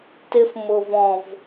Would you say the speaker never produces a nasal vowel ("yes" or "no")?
no